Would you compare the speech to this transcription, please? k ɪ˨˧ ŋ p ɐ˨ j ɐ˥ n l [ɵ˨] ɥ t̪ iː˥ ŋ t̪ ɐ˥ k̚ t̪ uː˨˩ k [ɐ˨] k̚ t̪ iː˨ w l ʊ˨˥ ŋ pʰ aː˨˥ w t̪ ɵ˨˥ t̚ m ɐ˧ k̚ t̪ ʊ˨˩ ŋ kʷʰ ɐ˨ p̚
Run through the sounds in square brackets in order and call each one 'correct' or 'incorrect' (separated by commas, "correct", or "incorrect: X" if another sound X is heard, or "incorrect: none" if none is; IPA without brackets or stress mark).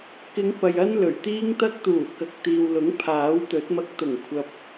incorrect: ɵ˨˩, correct